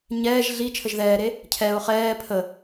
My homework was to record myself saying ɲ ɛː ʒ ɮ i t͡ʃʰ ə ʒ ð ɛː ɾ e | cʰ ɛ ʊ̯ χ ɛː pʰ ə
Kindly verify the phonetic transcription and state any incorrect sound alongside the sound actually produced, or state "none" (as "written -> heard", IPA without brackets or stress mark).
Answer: none